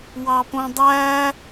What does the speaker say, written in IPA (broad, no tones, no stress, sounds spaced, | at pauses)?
w ɑ p õ dˤ æ